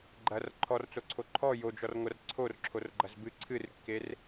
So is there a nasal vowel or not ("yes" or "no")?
no